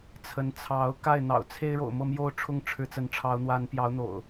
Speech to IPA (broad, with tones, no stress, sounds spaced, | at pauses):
t͡sʰ ə˨˦ n t͡sʰ ɑ˨˦ ʊ̯ k a˥˨ ɪ̯ n̪ ɑ̰˨˩ ʊ̯ t͡sʰ e˦ ɪ̯ ɻ o̰˨˩ ʊ̯ m ɤ˥˨ m j o˥˨ ʊ̯ ʈ͡ʂʰ ʊ˦ ŋ ʈ͡ʂʰ ɻ̩˨˦ t͡s ə˨˦ n ʈ͡ʂʰ ɑ˨˦ ʊ̯ n̪ w a˨˦ n p j ɑ˨˦ ʊ̯ n̪ o̰˨˩ ʊ̯